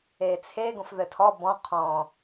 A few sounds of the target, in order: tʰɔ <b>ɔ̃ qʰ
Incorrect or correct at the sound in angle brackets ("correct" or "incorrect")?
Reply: correct